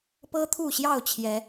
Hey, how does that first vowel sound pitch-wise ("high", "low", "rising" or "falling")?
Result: high